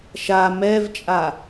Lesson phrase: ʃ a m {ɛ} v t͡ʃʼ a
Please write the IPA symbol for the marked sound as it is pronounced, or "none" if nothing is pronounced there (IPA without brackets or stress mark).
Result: ɛ